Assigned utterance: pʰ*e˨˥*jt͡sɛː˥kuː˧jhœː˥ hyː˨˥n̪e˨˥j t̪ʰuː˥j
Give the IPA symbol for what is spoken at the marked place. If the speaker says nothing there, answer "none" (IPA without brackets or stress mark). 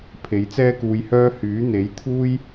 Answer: e˨˥